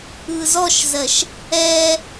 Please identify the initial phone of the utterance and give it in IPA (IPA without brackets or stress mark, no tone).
ɯ